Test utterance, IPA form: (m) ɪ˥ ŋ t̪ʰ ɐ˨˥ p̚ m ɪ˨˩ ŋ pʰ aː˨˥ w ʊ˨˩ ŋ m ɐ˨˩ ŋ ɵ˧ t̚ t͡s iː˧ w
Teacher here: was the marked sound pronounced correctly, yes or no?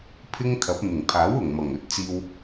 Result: no